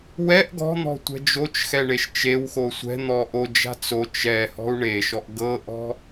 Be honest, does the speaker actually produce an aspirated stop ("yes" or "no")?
no